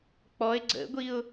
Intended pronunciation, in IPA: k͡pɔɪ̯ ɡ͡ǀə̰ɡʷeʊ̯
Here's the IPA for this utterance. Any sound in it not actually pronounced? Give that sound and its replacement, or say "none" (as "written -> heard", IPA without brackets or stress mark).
e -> i